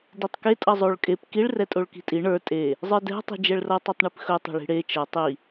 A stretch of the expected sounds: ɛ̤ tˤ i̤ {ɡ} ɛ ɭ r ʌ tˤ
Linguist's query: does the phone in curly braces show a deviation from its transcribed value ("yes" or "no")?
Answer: yes